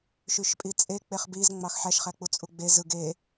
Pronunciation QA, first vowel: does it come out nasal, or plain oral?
oral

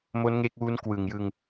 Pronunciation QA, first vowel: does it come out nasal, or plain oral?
oral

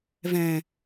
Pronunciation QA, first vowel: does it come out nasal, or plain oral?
nasal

